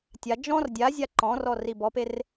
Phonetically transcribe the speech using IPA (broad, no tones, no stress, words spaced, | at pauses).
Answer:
tʲa d͡ʒɔ̃r dʲazʲa ǃɔ̃rɔ ribɔper